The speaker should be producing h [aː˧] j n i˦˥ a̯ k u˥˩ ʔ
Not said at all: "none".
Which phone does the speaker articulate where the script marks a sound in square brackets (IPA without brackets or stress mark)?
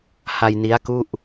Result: a˧